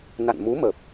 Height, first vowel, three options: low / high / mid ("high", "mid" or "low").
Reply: low